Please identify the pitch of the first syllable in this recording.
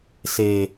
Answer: low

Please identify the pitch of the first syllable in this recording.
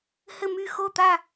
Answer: falling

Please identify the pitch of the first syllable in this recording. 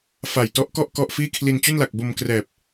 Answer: low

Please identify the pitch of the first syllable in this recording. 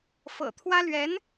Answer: low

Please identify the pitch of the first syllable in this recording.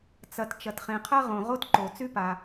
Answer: low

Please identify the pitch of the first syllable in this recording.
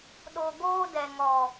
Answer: low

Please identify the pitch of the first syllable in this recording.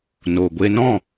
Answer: low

